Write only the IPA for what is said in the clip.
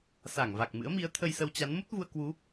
s a˧˩ ŋ v a˨˩ k̚ m ɨ̰˧˥ ə̯ m i˨˦ ə̯ t̪ʰ ə˧ j s ə˧ w t͡ɕ a˨˦ n m u˦˥ t̚ v u˧ ə̯ k w u˨˦

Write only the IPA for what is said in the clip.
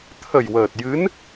t̪ʰ ə˨˩ j w əː˨˩ t̚ j ɨ˧˥ n

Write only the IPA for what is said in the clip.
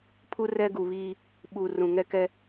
pʰ u˦ r ɛ˦ ɡ u˨ β iː˦ | ɓ u˨ r ũ˨ ŋ ɛ˦ k ɛ˦

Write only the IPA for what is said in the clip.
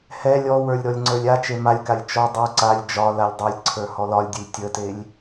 h ɛ lʲ ɔ w ə˞ lʲ ɾ ɔ lʲ ŋ͡ǀ ə˞ lʲ a t͡ʃ e m a lʲ k a lʲ t͡ʃ ɔ dˤ ə˞ ǀ a lʲ d͡ʒ ɒ l a lʲ dˤ e lʲ ǀʰ ə˞ h ɔ l ɒ lʲ dʲ ə lʲ tʲ ə t e lʲ

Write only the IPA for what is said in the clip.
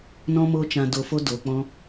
n ɔ̃˦ m oː˦ t͡ʃ ã˧ d o˧ f o˦ d o˨ k͡p ɔ̃˧

